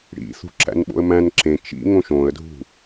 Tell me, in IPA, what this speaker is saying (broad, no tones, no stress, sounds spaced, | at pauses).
ɽ ḭ θ ṳ ǁ æ̰ n ɓ o̰ ə̯ m æ̃ n ǁ ẽ t͡ʃ ḭ ŋ õ ʃ õ ə̯ dʱ ṳ